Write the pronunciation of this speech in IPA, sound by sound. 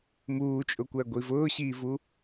muːt͡ʃʼʊkʷæɡʷi vʊːɕiːvu

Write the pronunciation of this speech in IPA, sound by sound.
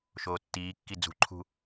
ʃoːtːiːkːi d͡zṳǃʰṳ

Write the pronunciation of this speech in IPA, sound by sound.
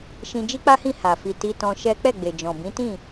ʃĩ˧ d͡ʒi˦k͡pa˦hĩ˦˨ ha˨ fi˨ ti˧tɔ̃˧ ʃɛ˦ k͡pɛ˦˨ɡ͡be˨d͡ʒɔ̃˨ bĩ˨˦tĩ˦˨

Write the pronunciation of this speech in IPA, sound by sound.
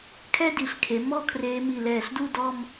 kʰɛ˥di˩˧ɬkʰe˩˧ mɔ˥˧kʰreː˧mi˧˩lɛː˧˩ɬ du˥˧ dɔ˥˧m

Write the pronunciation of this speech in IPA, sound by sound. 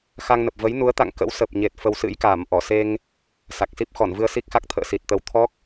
xa˧ŋnə˨˩p̚ və˨˦jnu˨˦ə̯t̪a̰˧˨ŋ kə̰˧˥w sə˨˩p̚ɲe˨˩t̚ fə˧wsɨ̰˧˥jkaː˧˩mʔɔ˧˩ se˧ŋ | sa˨˩k̚si˦˥p̚ xɔ˧˩nvɨ˧ə̯ si˦˥k̚xa˦˥k̚ t̪ʰə̰ː˧˨si˨˩t̚t̪ə˨˦w t̪ʰɔ˦˥k̚

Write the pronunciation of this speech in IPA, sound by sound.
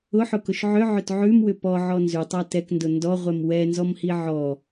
ʊħʊkʊʃ ʕʏʕʏt ʕʉmwʏ pɔʕɔ nzʉtˤa tɛkndʊ ndɔʁʷɛm wɛnzɔmhi ʕɔ

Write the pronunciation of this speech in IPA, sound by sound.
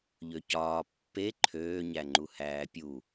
ʎøcɒː pːe ǃʰøːɲæŋ͡ǃu hæːpʲu

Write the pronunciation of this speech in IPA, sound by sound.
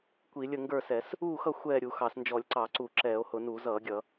kʷi˧˩˧lʲə˥˨ ŋɡə˞˥˨sɛ˧˩˧s | uː˥˨xʌ˥˨ xʷɛː˥˨ ɾʲu˧˩˧ xɑ˧˩˧snd͡ʒɔ˧˩˧lʲǀɑ˧˩˧ǀu˧˩˧ ǁɛː˧˩˧o̯hʊ˧˩˧nuː˧˩˧z ʌː˧˩˧ɡʲʌ˧˩˧

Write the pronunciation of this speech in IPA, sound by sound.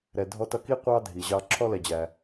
ɾɛ˩dʱɔ˧ tʌ˧ki˥ qʷɑ˥dʱi˩ʑɑ˧ ǁʰɔ˥lɛ˩d͡ʑæ˩

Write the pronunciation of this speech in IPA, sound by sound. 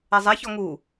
ɛzˤɛçɔ ŋu

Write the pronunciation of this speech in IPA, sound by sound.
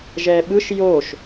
ʒɛɓɯʃ joʃ

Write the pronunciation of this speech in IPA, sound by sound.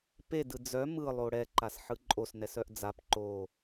pedɯ d͡zœ mɯlˠo ɽɛǃasħɯ ǃʼosnɛsœʔ d͡zap ǃo

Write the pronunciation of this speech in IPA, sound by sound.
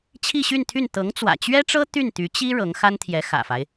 t͡ɕʰi˥˧ɕy˥˧nt̪ʰy˥˩n t̪ɤ˧˥ŋt͡swä̰˨˩t͡ɕɥɛ˥ʈ͡ʂɤ˥ t̪y˥˩nt̪y˧˥t͡ɕi˥ ɻɤ˧˥ŋxa˥nt̪ʰjɛ˧˥ xä̰˨˩fa˦ɪ̯

